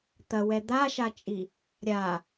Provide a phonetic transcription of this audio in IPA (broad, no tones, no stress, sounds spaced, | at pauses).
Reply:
t̪ ɐ w ɛ d̪ a ʃ a t͡ʃʼ i | ɾʲ a